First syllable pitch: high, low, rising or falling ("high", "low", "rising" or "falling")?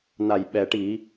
low